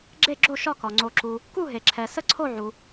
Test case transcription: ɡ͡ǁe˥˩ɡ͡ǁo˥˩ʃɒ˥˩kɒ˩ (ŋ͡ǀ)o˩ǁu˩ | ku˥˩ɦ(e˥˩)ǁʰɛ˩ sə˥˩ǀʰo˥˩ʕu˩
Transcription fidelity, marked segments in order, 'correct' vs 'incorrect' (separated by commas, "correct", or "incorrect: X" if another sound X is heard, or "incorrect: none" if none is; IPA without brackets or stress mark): correct, incorrect: e˩